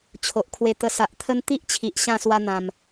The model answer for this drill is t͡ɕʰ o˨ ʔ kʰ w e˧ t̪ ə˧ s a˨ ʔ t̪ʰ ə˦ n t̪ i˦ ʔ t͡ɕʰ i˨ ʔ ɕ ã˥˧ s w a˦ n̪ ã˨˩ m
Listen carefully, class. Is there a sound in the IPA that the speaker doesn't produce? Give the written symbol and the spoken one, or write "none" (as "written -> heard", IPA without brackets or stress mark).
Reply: none